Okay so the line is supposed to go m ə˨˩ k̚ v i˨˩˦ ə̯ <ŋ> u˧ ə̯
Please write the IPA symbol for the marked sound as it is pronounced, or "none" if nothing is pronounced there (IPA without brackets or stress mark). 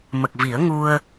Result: ŋ